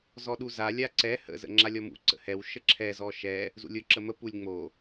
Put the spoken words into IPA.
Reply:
z ɔ ɗ u z a lʲ a ǀ ɛ h ə̰ z ə̰ ŋ͡ǁ a lʲ ɔ m ṵ ǀ ə̰ h ɛ w ʃ ə ǁʰ ɛ z ɔ ʃ ɛ | z ṵ lʲ ʊ ǁ ə m ə p u lʲ ŋ͡m o

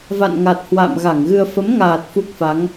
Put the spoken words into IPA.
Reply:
v a̰˧˨ n ŋ a˨˩ t̚ h w a̰ː˧˨ m ɣ a˧˩ ŋ ɣ ɨ˧ ə̯ f ə˨˦ m ŋ aː˨˩ t̚ f u˦˥ k̚ f a˨˦ ŋ

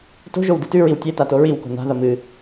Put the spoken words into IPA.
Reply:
t o̤ ʒ o w d i t ʉ ɹ i w tʲ e t a t o ɹ i w k o̤ n a̤ ð ɐ m ɨ

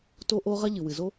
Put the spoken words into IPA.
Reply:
t o˥ ʔ o˥ ʁ ɐ˥ ʎ ɨ˩ w ɨ˩ z o˥

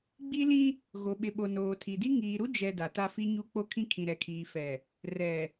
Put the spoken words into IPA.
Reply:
ɡ͡b i˦ l ĩ˦ | ɣ o˨ ɓ ɪ˨ ɓ o˨ n oː˨ tʰ i˨ d i˦ ŋ iː˨ ɾ u˦ d͡ʒ ɛ˨ d a˨ t a˦ f i˦ ɲ u˦ k͡p o˦ kʰ ĩ˦ kʰ ĩ˨ ɾ ɛ˨ kʰ iː˨ f ɛ˨ | r ɛ˨

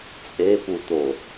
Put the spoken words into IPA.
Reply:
t͡sʼ e p u t̪ o

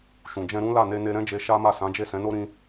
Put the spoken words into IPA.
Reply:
ʃ ũ˨ d͡ʒ ɛ̃˧ ɾ ũ˦ l a˦˨ n e˧ n e˧ ɾ ɛ̃˦ d͡ʒ e˧ ʃ a˦ m a˦˨ s ã˨˦ d͡ʒ e˦˨ s ɛ̃˨˦ n o˦ ɾ ĩ˦

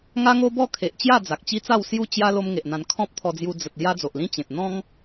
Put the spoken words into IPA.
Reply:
ŋ a˦ ŋ o˦ b ɔ˥˧ kʰ e˨ ʔ t͡ɕ j a˥˧ d͡z a˨ k̚ t͡ɕ i˦ t͡s a˥˧ w s j u˥˧ t͡ɕ j a˦ l o˦ m ŋ e˨ ʔ n̪ ã˧ n kʰ ɔ̃˦ p̚ t̪ʰ ɔ˧ d͡z j u˧ d͡z ə˨ t̚ l j a˦ d͡z o˨ ʔ l ĩ˦ t͡ɕ ẽ˨ t̚ n̪ ɔ̃˦ ŋ

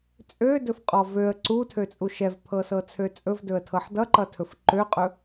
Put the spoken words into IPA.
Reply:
t͡sʼ ø d ɵ f qʼ ɔ v ø ə̯ ǀ u tʰ ø t͡sʼ u ʃ ɛ v pʰ ɤ s ɤ t͡sʰ ø t͡sʼ ɵ v d ɵ ə̯ tʰ ɤ ħ d ʌ ǃ ʌ tʰ ɵ f ǃ ø qʼ ɵ

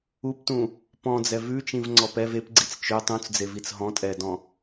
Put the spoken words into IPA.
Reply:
u p t ũ | p ɔ̃ d͡z ɛ v ʉ t͡ʃ ĩ v ŋ͡ǀ ɔ p ɛ v e p ɡ͡ǀ i t͡s t͡ʃ ø tˤ ũ t͡s d͡z e v i t͡s ɦ ɔ̃ tʼ ɛ d ɔ̃

